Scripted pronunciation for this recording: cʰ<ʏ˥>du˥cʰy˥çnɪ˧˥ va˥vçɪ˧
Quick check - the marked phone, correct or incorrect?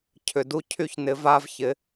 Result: incorrect